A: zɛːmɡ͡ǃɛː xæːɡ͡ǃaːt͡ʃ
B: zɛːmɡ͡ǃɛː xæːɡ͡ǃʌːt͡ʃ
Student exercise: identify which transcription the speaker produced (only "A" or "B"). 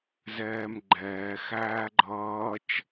B